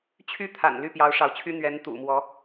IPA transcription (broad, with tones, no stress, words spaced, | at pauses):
t͡ɕʰy˥t̪ʰa̰˨˩n ly˥˩pjɑ˧˥ʊ̯ʂɑ˧˥ʊ̯t͡ɕʰy˥ n̪ɥɛ˧˥nt̪ṵ˨˩mwɔ˧˥